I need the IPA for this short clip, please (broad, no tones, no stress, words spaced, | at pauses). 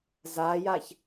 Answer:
zajaç